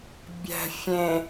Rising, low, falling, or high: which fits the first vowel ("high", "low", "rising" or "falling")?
low